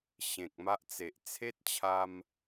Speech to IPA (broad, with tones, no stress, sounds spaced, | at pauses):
ɕ ẽ˨ k̚ m a˦ ʔ t͡s e˨ ʔ t͡sʰ e˦ t̚ t͡ɕʰ a˧ m